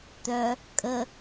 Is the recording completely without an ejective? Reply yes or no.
no